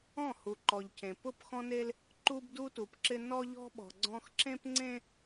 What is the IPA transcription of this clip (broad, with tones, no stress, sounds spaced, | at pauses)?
ɔ̃˦˨ h u˨ ǃ ɔ˨ ʎ cʰ ẽ˨ p ʊ˦˨ p x ɔ̃˦ n e˦ l | ǃ u˦ b d u˦ t u˨ p ǁ ɪ˦ n ɔ˦ ʎ ɔ̤˦ ɓ ɔ̤˨ ɡ͡ǀ ɔ̃˦ x ǁ ẽ˦ p ŋ͡ǀ ẽ˦